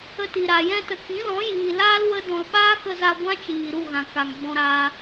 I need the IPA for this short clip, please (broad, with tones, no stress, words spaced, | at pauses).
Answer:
ə˧ti˨ɾa˨ jɛ̃˧tə˨kĩ˨˦lɔ̃˨˦ jiː˨laː˦l wə˦dɔ̃˧l ɓaː˦kə˧za˧ ɡʷã˦t͡ʃiː˨ ɾu˦˨ɣã˨ka˨ŋ ɡ͡bɔ̃˧ɾa˧